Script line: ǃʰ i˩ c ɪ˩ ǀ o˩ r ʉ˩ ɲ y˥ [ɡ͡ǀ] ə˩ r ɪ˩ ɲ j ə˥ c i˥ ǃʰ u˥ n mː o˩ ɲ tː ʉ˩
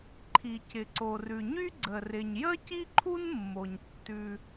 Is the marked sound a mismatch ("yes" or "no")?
no